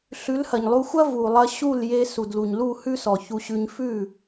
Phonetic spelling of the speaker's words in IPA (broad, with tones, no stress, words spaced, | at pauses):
ɬʉ˨˦lhɐ˨ɲlˠu˧xʷɐ˦ vu˨ lˠɐ˧ɕu˦˨lje˧ su˨dlu˨ɲlu˦˨ hʉ˦sɔ˨çu˧ ɕʉ˧ɲ fʉ˦˨